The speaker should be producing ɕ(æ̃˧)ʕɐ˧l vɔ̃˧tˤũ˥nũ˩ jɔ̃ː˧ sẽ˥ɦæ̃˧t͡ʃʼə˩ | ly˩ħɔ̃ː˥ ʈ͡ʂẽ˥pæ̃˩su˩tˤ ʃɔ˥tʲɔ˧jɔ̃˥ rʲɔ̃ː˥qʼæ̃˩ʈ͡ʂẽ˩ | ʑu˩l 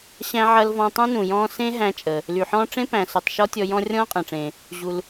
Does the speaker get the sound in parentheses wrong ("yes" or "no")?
no